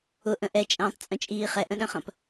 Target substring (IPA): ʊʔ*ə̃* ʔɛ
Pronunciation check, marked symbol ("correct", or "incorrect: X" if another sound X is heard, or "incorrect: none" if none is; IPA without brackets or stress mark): correct